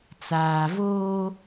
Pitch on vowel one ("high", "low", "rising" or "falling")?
low